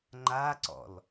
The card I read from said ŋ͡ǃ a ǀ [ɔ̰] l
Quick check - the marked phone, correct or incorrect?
correct